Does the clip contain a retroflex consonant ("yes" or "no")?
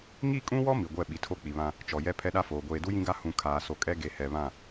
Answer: no